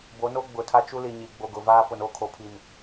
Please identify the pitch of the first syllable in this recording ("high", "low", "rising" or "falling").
rising